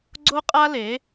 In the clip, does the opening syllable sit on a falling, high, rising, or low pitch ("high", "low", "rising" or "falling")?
high